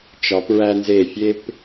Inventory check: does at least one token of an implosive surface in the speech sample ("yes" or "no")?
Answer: no